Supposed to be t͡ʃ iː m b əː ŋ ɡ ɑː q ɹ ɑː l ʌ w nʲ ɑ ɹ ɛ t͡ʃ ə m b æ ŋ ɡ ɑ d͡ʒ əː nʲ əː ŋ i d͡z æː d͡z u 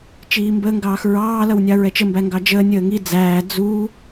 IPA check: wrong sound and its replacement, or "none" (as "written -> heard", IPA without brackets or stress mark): q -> x